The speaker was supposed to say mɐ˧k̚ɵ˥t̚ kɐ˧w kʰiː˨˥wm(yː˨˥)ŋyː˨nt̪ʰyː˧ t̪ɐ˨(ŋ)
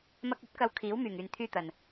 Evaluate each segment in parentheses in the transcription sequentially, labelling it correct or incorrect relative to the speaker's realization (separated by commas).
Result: incorrect, incorrect